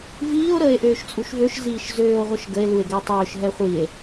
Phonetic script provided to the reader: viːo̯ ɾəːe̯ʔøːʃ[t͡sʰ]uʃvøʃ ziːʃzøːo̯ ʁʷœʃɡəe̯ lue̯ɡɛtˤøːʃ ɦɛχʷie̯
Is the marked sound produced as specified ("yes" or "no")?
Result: no